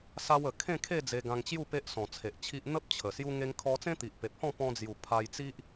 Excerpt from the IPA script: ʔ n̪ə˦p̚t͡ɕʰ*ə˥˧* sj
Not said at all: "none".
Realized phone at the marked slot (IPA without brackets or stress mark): ə˨˩